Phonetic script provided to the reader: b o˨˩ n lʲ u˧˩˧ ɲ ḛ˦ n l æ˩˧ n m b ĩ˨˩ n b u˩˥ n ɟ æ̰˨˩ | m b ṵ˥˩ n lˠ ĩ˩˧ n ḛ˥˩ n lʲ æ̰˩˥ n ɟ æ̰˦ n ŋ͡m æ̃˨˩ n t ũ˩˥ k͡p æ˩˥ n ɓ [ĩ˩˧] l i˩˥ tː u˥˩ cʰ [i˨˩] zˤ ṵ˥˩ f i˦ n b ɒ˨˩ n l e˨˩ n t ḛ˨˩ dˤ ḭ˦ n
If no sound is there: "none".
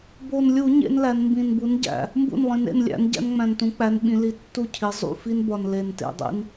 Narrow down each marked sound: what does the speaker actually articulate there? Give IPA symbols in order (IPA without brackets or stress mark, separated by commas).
ĩ˩˧, i˩˧